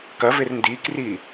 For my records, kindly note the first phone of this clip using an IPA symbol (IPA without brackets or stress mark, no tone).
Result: k